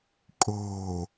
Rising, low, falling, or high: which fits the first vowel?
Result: low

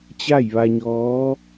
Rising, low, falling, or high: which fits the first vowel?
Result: falling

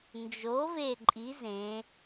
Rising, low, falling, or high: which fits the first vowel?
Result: rising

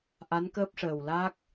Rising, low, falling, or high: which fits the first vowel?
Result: rising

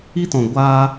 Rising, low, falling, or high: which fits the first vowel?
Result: high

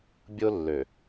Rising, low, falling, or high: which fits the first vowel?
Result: high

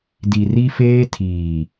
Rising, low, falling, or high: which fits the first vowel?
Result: low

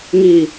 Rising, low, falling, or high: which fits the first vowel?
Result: low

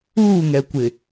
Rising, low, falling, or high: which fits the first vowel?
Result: falling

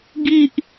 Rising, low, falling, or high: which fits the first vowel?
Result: high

